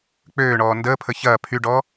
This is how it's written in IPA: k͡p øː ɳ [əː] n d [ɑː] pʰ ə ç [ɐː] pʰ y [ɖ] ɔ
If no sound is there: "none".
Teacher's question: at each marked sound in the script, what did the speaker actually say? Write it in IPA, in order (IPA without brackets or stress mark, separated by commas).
ɔː, əː, ɐː, ɖ